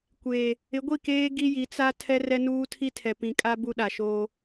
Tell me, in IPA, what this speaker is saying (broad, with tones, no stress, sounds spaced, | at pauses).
kʷ eː˨ | ɪ˨˦ ɡʷ i˦˨ k eː˦ ɡ i˦ j i˨˦ t͡s a˦ tʰ ɛ˦ r ɛ˦ n uː˦ tʰ i˦ tʰ ɛ˨ p ĩ˨ kʼ a˦ b u˦ ɗ a˨ ʃ oː˦